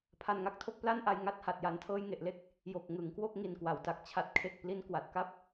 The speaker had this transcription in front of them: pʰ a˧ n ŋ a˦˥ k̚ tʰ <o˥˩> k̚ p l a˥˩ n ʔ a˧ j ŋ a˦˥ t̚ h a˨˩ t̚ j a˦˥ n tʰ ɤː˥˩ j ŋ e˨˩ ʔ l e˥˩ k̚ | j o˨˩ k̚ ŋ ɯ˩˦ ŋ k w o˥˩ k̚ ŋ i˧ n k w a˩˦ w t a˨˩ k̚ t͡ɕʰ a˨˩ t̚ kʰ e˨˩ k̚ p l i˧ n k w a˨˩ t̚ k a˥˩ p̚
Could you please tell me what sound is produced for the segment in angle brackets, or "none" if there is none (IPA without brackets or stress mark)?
o˥˩